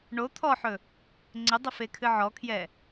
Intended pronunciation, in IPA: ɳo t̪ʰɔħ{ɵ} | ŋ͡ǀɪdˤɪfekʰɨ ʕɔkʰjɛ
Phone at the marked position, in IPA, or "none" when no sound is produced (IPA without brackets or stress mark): ɵ